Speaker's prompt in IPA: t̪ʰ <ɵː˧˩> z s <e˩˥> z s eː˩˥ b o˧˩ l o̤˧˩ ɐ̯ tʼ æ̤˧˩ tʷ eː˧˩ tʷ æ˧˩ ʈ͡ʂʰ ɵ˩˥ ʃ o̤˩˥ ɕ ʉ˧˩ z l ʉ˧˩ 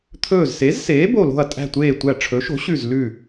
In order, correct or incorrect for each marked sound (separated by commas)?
correct, correct